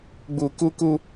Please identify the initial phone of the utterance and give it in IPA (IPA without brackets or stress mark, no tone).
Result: ɡ͡b